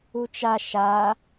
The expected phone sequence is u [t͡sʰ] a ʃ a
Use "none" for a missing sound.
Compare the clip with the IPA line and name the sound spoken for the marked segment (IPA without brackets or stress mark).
t͡ʃ